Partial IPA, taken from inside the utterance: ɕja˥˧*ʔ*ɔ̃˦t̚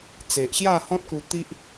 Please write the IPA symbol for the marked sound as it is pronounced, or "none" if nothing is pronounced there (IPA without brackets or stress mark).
h